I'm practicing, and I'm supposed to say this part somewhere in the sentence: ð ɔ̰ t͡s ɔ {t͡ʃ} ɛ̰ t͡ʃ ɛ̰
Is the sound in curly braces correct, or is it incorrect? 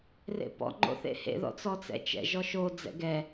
incorrect